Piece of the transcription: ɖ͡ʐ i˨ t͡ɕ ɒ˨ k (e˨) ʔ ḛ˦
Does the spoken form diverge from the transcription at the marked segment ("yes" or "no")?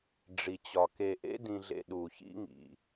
no